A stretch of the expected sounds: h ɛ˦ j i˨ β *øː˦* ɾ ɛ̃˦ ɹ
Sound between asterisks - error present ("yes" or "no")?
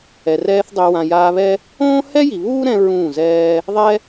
yes